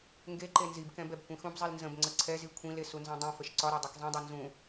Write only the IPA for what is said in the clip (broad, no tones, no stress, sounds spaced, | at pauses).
ŋ ɡ e ǃ e n z i b k ɛ̃ b ɛ b kʷ ĩ x ũ b zˤ i l n z ə̃ b ŋ͡ǀ ə ǀʰ ɛ z i kʷʰ ĩ l e s u n z ɛ̃ dˤ ĩ f ə ʃ ǀ ɒ ɾ ɒ dˤ ɛ k zˤ ĩ dˤ e n z ũ